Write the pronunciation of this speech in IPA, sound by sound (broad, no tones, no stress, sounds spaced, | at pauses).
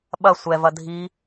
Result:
ɓ ɐ sʷ ɛ v ɐ dʱ i